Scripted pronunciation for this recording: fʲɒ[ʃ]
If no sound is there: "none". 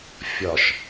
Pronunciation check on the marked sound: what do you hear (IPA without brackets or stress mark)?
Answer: ʃ